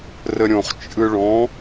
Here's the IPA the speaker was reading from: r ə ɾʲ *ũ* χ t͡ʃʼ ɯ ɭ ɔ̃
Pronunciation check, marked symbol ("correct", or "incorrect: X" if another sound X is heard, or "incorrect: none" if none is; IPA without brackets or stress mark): incorrect: õ